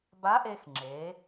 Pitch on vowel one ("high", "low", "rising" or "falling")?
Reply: rising